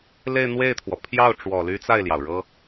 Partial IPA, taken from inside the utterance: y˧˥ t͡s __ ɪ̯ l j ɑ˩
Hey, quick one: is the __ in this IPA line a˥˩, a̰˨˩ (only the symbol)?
a˥˩